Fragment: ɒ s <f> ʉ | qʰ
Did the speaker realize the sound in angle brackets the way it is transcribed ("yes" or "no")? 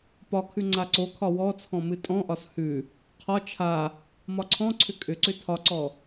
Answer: no